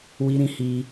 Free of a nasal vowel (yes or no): no